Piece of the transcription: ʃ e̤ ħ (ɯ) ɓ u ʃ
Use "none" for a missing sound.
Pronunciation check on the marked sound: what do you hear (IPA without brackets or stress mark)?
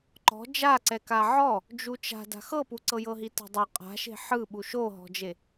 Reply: ɯ